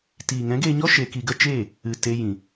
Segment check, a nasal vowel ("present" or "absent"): present